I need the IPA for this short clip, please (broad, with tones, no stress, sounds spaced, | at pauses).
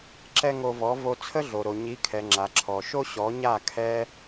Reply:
ǁ ɛ˦ ŋ o˧ v ɔ˨˦ v o˧ t͡sʰ ə˦ ɮ o˨ ɾ o˨ ɲ i˨˦ kʰ ɛ˨ ŋ͡ǁ a˨ ǁʰ ɔ˨ ʃ o˦ ɕ ɔ˨˦ ɲ a˦˨ kʰ ɛ˧